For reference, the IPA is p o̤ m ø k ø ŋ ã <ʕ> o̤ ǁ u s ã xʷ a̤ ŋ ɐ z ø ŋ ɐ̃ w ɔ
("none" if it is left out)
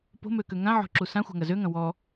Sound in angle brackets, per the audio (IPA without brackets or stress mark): ʕ